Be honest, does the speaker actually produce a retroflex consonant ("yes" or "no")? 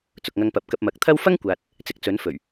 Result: no